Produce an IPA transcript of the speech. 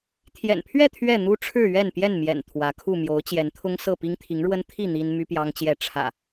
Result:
t̪ʰ j ɛ̰˨˩ n pʰ ɥ ɛ˥˨ t̪ʰ ɥ ɛ˥˨ n̪ u˦ ʈ͡ʂʰ ɻ̩˥˨ ɥ ɛ˥˨ n p j ɛ˥˨ n m j ɛ̰˨˩ n t̪ʰ w ä˨˦ kʰ u˥˨ m j o˨˦ ʊ̯ t͡ɕ j ɛ˨˦ n t̪ʰ ʊ˦ ŋ s ɤ˥˨ p i˦ ŋ t̪ʰ i˨˦ ŋ ɻ w ə˦ n t̪ʰ i˥˨ n̪ i˦ n m y˦ p j ɑ˦ ŋ t͡ɕ j ɛ˥˨ ʈ͡ʂʰ ä̰˨˩

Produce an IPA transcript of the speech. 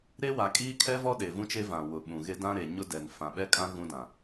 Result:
ɾ e˦ w a˨ kʼ iː˦ kʰ ɛ˦ v ɔ˦ ɗ e˨ v ũ˦ t͡ʃ e˦ v ã˨ w ʊ˨ ɓ ũ˨ ɣ e˦ d ã˦ ɾ e˨ ɲ ʊ˦ d ɛ˨ n f ã˨ ɓ ɛ˦ kʼ ã˦ ɣ ũ˦ d ã˨

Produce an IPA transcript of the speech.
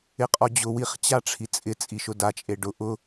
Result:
ɪ qʼ ɔ d͡ʑ ʊ w i χ t͡ɕ a ʈ͡ʂʰ i t͡sʼ ɪ t͡sʼ i ʃ ʊ d a t͡ʃʼ e ɖ ʊ ʔ ʊ

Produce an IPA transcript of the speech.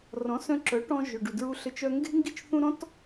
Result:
r ɔ̃˩˥ s œ̃˧ ǁ œ˩˥ ʈ ɔ̃˧ ʒ ʏ˩ ɖ u˩ d ɹ u˧ ɬ ɘ˧ t͡ʃ œ˧ ŋ ɡ e̤˥ ŋ ɡ i˥˩ t͡ʃ θ ũ˥ ɾ ɔ̃˥ t

